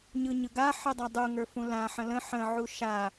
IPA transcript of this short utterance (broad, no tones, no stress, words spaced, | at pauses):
ɲɯɲɯɡa ħɯdˤadˤu ŋə˞fũlã ħə̃lə̃ ħə̃ ʕuʃa